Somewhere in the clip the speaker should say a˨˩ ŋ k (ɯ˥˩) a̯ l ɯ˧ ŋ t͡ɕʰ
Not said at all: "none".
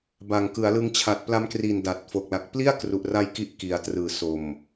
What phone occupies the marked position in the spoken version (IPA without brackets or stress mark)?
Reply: ɯ˩˦